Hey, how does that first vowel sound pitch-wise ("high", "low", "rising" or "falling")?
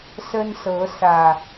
high